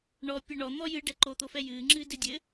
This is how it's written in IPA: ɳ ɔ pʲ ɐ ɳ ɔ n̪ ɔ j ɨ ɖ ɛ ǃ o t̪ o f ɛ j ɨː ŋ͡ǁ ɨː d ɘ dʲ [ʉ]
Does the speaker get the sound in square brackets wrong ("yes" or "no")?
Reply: yes